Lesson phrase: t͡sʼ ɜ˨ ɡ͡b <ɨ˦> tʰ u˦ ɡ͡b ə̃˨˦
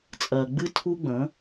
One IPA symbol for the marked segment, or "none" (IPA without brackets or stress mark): ɨ˦